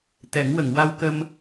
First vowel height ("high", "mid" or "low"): mid